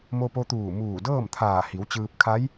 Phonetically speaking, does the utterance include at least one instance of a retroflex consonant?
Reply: no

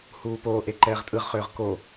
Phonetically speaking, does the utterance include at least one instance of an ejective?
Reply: yes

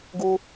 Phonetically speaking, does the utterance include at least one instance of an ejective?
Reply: no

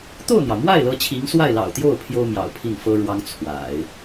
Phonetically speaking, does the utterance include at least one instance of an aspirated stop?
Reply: yes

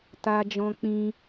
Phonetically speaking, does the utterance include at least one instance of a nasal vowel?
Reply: yes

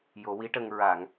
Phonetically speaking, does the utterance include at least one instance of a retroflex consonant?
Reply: yes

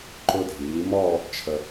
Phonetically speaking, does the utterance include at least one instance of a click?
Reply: yes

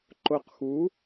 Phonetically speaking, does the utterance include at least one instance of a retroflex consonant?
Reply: no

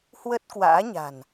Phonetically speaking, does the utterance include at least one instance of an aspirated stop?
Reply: no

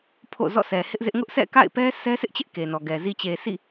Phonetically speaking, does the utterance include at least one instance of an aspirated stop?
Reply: yes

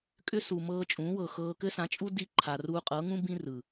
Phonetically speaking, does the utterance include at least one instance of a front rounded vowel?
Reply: yes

